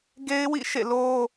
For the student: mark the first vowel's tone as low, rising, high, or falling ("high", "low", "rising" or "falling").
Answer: high